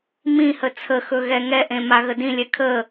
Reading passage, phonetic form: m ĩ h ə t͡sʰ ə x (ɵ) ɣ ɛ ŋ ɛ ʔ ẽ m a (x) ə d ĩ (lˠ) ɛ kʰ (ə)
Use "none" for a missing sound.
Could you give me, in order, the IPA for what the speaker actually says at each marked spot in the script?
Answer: ɵ, ɣ, lʲ, ə

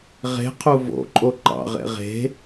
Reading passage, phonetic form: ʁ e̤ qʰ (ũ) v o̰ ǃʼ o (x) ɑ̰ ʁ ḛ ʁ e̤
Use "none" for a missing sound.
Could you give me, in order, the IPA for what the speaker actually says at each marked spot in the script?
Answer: u, ǃ

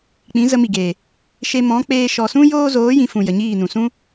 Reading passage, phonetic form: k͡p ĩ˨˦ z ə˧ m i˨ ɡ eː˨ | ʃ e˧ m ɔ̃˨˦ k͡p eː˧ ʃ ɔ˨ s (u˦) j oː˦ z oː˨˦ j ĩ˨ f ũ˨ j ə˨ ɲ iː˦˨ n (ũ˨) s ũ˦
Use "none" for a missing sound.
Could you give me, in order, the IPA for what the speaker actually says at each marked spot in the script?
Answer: ũ˦, ũ˨

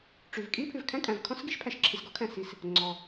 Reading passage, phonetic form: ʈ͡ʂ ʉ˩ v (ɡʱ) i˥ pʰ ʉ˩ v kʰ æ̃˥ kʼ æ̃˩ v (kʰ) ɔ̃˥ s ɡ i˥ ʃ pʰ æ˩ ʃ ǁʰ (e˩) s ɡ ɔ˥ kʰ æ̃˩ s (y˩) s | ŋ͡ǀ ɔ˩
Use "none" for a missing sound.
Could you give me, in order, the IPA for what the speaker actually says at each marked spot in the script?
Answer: kʼ, kʰ, i˩, i˩

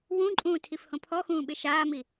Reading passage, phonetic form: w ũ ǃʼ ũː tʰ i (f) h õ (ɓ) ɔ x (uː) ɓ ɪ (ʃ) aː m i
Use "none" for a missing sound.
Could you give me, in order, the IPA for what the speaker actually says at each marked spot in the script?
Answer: f, pʰ, ũː, ʃ

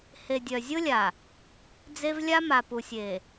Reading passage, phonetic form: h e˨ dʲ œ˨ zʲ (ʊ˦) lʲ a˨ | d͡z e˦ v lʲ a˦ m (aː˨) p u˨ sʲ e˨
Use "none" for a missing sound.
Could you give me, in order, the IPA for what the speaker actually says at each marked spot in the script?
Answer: ʊ˦, a˨

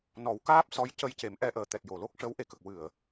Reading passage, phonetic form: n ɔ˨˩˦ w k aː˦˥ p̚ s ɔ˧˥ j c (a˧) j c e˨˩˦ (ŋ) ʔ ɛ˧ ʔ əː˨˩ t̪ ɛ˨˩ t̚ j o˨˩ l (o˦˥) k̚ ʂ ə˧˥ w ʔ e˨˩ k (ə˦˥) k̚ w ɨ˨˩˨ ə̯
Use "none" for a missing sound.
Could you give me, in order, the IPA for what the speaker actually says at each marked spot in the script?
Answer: ə˧, m, o˦˥, ə˨˩

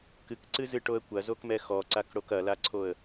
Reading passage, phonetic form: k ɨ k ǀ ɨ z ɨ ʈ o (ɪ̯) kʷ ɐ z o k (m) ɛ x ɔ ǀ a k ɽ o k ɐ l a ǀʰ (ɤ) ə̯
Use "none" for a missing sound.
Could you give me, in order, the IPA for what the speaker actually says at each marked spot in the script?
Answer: ə̯, m, o

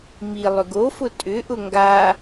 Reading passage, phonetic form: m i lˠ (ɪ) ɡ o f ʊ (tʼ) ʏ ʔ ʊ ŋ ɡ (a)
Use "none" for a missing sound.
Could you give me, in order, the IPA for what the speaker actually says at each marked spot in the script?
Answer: ʏ, tʼ, a

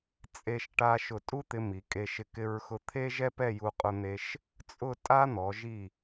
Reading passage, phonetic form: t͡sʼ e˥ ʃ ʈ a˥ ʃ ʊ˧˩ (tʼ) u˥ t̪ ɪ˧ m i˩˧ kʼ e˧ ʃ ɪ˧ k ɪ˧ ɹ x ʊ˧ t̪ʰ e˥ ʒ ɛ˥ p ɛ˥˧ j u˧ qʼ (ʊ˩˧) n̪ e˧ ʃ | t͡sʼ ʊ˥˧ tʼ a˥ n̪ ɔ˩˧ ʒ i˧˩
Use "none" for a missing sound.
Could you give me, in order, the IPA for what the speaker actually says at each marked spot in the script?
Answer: tʼ, ʊ˧

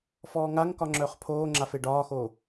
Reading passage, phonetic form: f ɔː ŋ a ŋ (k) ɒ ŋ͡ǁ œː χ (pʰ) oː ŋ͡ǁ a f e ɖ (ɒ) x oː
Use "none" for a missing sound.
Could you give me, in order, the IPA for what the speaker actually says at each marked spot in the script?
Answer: k, pʰ, ɒː

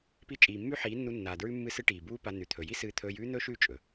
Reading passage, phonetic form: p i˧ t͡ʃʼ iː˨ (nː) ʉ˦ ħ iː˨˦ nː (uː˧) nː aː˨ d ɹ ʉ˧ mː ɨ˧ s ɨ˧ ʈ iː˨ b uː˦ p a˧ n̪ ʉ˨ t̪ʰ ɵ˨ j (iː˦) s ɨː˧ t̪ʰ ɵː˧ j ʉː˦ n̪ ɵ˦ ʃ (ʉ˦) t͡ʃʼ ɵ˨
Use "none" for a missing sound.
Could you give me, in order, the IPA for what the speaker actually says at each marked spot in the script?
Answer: mː, u˧, i˦, ʉ˦˨

